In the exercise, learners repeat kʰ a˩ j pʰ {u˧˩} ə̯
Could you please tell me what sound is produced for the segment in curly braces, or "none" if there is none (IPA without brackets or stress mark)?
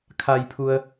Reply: u˩